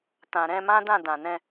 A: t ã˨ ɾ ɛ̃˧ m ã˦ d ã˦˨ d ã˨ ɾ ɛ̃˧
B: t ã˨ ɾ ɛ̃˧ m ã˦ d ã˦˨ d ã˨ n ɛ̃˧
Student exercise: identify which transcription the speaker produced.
B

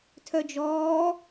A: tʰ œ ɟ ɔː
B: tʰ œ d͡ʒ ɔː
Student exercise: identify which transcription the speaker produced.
B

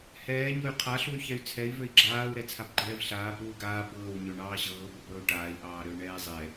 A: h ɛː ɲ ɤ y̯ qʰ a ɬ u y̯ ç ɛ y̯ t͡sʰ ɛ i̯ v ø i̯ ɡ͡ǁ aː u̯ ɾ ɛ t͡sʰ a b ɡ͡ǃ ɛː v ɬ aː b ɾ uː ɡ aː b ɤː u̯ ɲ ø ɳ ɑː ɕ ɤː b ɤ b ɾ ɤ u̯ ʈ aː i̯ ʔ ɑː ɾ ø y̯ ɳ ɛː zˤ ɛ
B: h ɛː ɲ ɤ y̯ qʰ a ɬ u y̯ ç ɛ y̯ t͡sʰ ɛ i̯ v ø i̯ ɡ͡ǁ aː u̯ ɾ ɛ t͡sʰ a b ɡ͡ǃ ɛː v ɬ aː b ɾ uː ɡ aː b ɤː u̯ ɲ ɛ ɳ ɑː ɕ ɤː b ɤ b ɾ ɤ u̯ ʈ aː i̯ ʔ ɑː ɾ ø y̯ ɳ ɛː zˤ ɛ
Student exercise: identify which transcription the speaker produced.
A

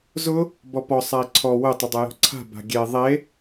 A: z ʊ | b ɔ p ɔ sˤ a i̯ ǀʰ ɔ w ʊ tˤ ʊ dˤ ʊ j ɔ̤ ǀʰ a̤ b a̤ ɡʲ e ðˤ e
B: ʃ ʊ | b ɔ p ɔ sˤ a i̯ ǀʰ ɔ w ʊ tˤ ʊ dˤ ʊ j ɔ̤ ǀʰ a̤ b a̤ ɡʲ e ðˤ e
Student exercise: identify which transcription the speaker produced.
A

